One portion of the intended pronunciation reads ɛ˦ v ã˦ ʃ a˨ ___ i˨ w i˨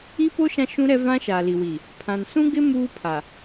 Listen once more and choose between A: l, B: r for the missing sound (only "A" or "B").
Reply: A